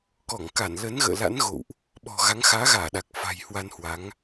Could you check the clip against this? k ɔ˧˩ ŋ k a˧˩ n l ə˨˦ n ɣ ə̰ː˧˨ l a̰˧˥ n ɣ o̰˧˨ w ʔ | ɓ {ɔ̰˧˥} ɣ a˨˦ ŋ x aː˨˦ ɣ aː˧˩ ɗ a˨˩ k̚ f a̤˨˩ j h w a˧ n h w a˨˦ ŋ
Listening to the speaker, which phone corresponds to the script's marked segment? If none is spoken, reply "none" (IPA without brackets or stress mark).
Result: ɔ̤˨˩